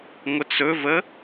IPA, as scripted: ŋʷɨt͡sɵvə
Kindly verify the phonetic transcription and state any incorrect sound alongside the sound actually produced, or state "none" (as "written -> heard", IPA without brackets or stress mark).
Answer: ɨ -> ə